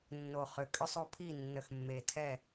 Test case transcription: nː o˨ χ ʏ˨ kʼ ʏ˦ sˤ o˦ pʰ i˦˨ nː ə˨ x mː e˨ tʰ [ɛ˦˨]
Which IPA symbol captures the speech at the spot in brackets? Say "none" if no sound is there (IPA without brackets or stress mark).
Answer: ɛ˦˨